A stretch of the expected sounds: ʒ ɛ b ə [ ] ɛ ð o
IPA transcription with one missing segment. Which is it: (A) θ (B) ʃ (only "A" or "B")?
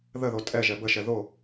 B